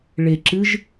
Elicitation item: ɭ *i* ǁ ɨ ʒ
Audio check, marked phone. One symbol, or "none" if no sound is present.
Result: e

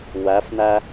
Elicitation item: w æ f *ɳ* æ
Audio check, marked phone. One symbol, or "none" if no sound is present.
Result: n̪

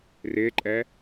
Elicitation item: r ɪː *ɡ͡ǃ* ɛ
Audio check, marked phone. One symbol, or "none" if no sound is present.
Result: ǃʼ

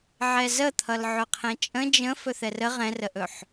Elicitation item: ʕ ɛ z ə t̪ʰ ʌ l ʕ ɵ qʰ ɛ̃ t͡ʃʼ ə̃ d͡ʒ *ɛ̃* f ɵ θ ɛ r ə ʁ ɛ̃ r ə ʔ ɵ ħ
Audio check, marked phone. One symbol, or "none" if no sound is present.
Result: ə̃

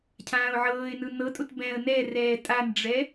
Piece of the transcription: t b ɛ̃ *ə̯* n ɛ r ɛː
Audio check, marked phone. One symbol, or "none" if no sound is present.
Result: ə̯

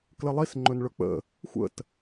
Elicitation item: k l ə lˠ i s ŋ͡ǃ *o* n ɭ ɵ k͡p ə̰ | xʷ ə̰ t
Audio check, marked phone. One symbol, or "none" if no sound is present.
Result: ɵ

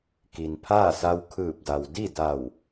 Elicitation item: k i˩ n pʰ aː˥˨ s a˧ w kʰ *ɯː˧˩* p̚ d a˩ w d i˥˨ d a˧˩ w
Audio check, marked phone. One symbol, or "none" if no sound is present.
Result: ɯː˧˩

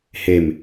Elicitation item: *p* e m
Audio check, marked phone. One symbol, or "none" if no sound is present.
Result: h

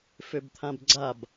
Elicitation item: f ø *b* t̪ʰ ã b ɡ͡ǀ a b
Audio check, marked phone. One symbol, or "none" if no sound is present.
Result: b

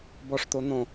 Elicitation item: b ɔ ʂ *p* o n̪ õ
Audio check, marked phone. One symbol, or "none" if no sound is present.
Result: t̪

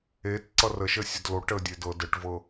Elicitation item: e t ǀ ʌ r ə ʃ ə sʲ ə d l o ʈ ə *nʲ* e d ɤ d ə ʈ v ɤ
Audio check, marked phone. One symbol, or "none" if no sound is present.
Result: dʲ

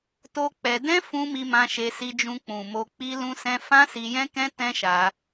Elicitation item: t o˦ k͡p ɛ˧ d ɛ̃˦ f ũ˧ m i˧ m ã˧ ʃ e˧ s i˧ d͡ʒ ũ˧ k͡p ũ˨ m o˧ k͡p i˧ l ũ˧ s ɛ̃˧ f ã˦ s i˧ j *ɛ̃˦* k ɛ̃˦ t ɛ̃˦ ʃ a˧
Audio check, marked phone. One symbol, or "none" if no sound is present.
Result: ɛ̃˦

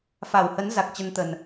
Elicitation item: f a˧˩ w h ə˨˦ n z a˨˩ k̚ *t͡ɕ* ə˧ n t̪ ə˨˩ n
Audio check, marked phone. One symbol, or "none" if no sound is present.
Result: t͡ɕ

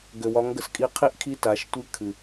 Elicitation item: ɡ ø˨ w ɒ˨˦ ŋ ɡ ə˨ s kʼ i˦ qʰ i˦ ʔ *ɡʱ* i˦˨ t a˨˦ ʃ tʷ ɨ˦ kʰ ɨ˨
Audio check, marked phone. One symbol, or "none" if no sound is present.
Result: kʰ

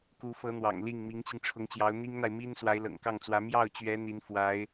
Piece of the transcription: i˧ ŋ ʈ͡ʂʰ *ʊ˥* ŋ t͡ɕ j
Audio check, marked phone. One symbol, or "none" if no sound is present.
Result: ʊ˧˥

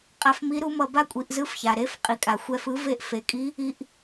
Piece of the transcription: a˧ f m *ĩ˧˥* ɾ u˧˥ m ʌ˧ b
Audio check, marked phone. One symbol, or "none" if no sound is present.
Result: i˧˥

